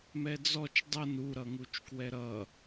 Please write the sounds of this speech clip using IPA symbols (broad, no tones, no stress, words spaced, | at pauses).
mɛd͡zɔt͡ʃ dˤʌn u ɾʌŋut͡ʃkwɛɾʌ